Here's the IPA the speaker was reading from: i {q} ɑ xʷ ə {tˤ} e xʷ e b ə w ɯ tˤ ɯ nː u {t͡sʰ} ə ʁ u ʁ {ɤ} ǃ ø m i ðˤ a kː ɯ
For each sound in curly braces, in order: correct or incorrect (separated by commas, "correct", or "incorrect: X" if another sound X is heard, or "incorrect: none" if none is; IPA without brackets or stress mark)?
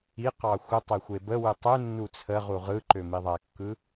correct, correct, correct, incorrect: ɯ